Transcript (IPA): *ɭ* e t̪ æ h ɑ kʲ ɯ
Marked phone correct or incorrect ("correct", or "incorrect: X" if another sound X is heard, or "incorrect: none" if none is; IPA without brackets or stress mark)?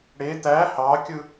incorrect: ɽ